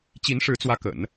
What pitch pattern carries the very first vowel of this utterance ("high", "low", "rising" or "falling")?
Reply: rising